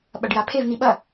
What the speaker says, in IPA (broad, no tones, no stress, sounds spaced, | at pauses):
ɓ ɐ ɖ j a pʰ e v n̪ i ɓ ɐ